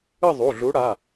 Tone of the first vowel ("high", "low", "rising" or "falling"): falling